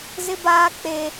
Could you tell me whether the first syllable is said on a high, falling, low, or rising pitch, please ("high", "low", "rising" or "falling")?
high